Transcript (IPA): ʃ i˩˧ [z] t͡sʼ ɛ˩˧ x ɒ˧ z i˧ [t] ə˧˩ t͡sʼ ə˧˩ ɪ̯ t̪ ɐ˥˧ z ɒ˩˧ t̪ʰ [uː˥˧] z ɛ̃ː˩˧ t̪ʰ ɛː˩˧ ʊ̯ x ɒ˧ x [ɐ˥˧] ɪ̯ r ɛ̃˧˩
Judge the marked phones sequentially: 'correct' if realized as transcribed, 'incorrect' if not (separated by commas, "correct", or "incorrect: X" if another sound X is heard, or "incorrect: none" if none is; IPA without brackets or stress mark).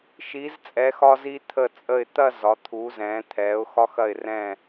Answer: correct, incorrect: t̪ʰ, incorrect: uː˩˧, incorrect: ɐ˧˩